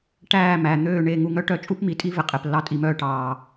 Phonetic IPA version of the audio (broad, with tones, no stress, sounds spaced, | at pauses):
ʈ æː˦˨ m æ˨ n̪ øː˦˨ ɳ e˦˨ ŋ u˧ ŋ œ˦ ʈ œ˧ t͡ʃʼ u˦ p m i˨ tʼ i˦ v e˨ qʼ e˨ p lː ɑ˧ tʼ i˨ m œː˧ ʈ ɑː˨